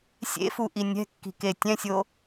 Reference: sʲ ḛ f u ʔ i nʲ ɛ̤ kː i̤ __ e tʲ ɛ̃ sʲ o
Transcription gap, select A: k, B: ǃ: A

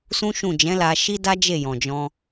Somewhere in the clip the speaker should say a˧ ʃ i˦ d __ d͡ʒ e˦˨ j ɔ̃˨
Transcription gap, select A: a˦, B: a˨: A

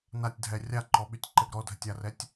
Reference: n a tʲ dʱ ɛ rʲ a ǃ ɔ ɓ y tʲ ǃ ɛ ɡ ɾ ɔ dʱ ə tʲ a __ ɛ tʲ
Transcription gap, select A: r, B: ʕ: A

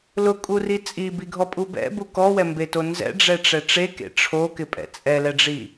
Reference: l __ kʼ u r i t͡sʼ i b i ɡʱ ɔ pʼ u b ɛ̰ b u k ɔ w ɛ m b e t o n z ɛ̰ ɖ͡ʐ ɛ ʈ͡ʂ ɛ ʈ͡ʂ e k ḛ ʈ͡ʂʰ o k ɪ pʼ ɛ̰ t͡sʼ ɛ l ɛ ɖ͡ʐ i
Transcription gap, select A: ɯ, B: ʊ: B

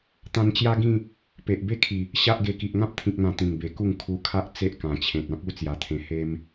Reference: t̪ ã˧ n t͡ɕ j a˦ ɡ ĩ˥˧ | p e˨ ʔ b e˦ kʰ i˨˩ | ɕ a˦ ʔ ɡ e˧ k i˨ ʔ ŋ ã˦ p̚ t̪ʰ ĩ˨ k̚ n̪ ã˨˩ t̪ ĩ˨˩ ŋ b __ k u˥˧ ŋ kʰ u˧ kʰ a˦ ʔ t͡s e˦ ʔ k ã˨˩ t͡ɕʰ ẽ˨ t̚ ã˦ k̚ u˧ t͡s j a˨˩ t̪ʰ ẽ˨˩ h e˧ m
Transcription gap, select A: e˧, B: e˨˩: B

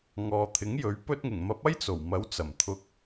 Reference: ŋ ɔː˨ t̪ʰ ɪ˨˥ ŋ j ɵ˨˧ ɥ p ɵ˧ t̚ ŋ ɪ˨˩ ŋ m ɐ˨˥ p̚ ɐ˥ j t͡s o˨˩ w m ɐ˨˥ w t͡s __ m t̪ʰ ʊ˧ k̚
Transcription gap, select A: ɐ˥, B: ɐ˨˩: B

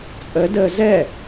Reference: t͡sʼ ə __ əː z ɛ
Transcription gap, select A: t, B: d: B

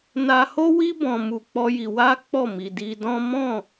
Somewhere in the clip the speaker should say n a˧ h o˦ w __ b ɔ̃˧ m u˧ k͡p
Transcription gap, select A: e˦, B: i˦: B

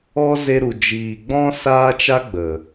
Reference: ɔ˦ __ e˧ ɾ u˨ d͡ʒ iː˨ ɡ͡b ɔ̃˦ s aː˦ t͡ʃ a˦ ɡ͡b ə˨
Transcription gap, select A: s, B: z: B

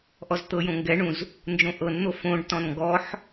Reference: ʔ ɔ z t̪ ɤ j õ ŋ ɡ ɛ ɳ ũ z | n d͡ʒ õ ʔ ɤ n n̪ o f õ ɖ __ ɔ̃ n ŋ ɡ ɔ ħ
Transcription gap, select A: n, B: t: B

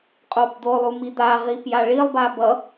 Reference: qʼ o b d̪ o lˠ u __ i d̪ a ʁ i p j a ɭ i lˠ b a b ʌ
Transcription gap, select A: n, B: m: B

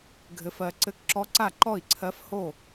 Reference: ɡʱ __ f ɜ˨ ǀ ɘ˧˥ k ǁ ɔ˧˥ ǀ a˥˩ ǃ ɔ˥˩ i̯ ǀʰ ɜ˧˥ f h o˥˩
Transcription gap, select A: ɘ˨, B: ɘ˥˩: A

